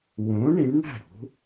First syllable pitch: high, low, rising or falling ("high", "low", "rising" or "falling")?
rising